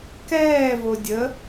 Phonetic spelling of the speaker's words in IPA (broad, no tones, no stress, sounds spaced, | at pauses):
k ɛː v o dʲ ə